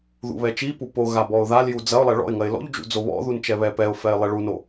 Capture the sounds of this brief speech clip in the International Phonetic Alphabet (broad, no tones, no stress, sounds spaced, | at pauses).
ð ṵ β ɛ t͡ʃ i p u p o ɣ a b ɔ ʊ̯ ð a l j u d͡z ɐ ʊ̯ lˠ ɛ ɭ ɔ̰ ɪ̯ ŋ ɐ ɪ̯ l ɔ̰ ʎ d͡ʒ ṵ d͡z o β ɔ̰ ð u n t͡ʃ ɛ β ɛ p ɛ ʊ̯ f ɛ ɪ̯ lˠ ɛ ɭ u n o